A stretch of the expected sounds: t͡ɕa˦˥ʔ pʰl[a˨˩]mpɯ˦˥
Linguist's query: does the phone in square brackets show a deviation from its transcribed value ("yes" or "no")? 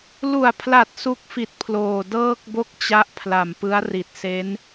no